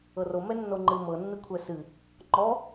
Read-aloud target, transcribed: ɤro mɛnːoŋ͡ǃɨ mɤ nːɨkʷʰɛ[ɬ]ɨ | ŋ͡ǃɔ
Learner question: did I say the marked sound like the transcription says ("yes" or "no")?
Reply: no